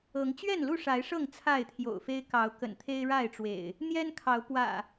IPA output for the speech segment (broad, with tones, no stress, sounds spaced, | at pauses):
ɤ˨˦ ŋ t͡ɕ ɥ ɛ˥˨ n l u˥˨ ʂ a˨˦ ɪ̯ ʂ ɤ˥˨ ŋ t͡sʰ a˥˨ ɪ̯ t̪ʰ j o̰˨˩ ʊ̯ f e˦ ɪ̯ k ɑ˨˦ ʊ̯ k ə̰˨˩ n t̪ʰ e˦ ɪ̯ ɻ a˥˨ ɪ̯ ʈ͡ʂ w ḛ˨˩ ɪ̯ | n̪ j ɛ˦ n kʰ ɑ˨˦ ʊ̯ p w ä̰˨˩